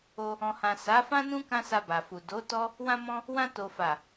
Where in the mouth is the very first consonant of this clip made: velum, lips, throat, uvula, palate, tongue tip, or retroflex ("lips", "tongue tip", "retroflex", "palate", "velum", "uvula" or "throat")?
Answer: throat